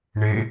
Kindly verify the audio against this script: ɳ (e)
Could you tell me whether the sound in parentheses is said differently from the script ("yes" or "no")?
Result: no